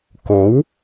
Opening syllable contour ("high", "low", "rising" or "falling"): rising